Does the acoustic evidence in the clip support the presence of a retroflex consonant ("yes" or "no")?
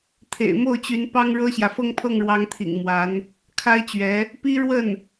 yes